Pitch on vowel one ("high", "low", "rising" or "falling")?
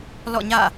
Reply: falling